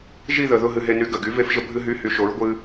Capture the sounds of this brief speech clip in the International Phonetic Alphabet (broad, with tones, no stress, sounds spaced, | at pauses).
ʒ i˥˧ ð ə˨˩ ð ʊ˥˧ ɦ ɨ˧ ɦ e˧ n y˨˥ ɡ ə˨˩ ɡ y˨˥ v e˧ f ʒ ə˧ bʱ ɨ˧ ɦ y˧˥˧ h y˧ ʃ o˨˥ ɹ ɡʷ ɨ˧